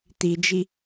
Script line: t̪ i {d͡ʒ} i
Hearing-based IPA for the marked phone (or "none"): d͡ʒ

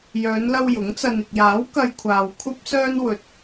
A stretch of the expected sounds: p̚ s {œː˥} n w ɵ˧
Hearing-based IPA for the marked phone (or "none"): œː˥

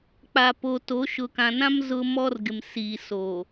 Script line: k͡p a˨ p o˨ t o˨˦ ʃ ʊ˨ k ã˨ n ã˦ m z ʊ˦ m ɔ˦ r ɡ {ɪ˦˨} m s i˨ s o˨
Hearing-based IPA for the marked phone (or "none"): ɪ˨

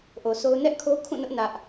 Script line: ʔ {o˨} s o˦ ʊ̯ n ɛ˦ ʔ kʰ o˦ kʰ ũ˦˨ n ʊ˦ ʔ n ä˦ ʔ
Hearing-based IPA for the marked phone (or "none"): o˨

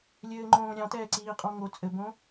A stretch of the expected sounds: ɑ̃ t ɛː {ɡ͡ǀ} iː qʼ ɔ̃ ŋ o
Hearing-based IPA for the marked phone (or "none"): ǀ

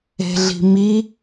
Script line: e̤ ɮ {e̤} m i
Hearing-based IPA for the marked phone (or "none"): i̤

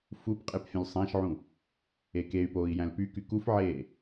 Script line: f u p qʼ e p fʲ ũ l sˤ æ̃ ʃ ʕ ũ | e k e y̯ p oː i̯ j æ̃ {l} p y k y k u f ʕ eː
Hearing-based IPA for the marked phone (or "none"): l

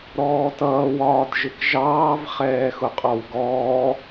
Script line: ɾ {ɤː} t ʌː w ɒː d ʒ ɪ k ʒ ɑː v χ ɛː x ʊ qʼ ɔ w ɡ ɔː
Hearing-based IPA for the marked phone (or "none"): ɔː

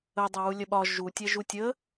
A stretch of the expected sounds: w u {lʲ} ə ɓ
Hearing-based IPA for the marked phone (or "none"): lʲ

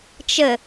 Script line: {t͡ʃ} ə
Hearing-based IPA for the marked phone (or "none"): t͡ʃ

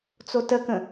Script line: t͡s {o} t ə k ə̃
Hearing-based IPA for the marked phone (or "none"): o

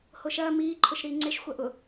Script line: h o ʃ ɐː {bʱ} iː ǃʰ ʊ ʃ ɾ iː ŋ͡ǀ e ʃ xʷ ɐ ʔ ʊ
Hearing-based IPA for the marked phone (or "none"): m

